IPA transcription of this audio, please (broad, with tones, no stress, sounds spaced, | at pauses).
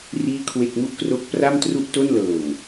r iː˥˩ kʰ w e˥˩ k̚ m u˥˩ ʔ k r o˦˥ k̚ p r a˥˩ m t r u˥˩ ʔ t o˥˩ n l ɤː˨˩ ŋ